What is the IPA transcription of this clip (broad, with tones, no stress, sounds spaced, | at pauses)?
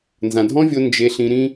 n z ã˨ dʱ ɔ̃˦ vʲ o˧ n d͡ʒ e˧ ɬ ĩ˧ ɾ ĩ˦